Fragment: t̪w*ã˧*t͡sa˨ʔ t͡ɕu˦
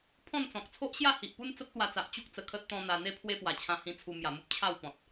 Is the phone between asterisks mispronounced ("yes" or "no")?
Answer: yes